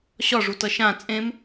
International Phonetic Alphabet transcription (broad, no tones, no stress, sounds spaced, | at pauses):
ɕ ɒ ʐ u t ʌ ʃ ã t͡sʼ ẽ m